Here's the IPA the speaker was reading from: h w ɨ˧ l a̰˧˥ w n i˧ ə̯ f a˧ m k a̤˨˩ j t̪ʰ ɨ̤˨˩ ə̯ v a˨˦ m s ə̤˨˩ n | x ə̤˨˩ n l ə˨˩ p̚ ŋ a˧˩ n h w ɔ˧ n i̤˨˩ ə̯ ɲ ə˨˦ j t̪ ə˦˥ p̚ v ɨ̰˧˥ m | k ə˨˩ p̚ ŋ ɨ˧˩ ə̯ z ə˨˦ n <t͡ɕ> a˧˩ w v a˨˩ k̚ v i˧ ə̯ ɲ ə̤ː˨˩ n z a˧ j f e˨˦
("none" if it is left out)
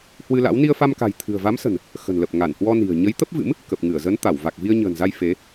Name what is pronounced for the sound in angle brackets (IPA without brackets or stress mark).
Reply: t̪